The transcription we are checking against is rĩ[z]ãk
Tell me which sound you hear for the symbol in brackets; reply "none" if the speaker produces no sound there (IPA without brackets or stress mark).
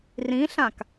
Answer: ɬ